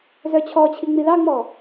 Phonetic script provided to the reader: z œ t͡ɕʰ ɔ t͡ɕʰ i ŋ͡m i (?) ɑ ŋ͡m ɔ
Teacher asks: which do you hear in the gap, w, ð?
ð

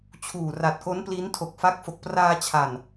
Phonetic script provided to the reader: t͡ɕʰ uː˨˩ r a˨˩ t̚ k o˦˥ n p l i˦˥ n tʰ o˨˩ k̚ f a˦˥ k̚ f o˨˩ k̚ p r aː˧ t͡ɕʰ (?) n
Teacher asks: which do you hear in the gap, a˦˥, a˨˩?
a˨˩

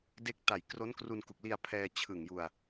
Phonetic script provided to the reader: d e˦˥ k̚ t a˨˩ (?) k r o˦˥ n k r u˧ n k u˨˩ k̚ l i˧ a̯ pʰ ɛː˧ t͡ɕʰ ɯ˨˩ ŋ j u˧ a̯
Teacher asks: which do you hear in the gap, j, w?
j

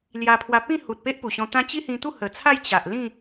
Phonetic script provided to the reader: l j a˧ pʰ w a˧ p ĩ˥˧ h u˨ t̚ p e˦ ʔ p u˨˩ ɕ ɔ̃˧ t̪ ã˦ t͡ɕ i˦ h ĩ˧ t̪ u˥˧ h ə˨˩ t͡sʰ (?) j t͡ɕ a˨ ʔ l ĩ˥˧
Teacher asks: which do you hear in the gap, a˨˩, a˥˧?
a˥˧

